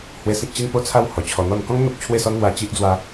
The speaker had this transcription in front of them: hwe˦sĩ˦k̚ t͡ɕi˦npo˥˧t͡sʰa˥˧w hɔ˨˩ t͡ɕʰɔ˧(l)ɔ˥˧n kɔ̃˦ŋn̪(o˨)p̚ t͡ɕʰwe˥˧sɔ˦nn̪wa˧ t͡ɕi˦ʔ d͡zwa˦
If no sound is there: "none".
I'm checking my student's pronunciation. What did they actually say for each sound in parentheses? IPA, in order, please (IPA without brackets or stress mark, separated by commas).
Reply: n̪, o˨